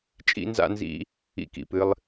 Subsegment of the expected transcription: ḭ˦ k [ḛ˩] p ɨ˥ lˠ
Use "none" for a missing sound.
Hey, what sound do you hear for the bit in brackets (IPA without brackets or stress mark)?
ḭ˩